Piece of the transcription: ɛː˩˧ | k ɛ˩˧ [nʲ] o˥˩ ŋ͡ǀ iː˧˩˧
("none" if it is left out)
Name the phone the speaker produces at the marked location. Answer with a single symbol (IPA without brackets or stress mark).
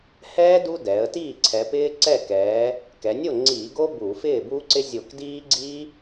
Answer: nʲ